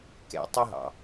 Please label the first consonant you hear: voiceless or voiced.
voiceless